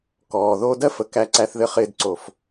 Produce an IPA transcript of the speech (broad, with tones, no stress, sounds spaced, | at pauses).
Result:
k ɔː˨ ð oː˦ d ɜ˥ f ə˨ k æ˦ ǀ æ˦ θ ð ɘ˦ χ ɪː˦ d ǀ o˨ f